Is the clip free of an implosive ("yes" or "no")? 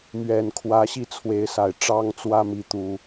yes